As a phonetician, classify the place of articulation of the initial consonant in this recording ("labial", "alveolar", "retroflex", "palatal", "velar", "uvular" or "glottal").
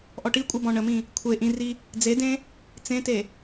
glottal